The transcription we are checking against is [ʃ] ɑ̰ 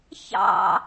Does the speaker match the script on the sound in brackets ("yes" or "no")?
no